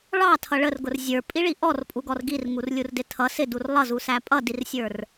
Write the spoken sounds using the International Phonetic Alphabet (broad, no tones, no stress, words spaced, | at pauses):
ɭɑtʰʌ ɭərɡʊr zʲə˞pʼiɭi ʔɔrpʼuɡɔr ɡirŋurlʲurdɪ tʰʌ sɪdur lˠʌzusæ pʼʌdirsʲə˞r